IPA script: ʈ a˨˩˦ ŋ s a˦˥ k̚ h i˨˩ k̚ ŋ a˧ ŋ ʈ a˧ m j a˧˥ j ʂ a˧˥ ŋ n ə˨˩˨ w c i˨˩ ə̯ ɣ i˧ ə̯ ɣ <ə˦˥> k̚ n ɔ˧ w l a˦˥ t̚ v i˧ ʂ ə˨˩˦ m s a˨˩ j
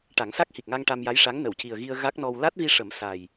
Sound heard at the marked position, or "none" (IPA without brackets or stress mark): a˦˥